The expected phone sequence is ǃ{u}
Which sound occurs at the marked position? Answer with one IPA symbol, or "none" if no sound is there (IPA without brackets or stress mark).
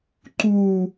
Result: u